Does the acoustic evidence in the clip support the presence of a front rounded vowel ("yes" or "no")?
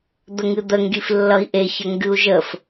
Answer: no